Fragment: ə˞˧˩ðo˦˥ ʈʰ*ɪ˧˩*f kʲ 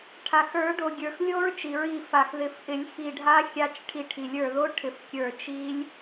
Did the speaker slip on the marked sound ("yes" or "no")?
no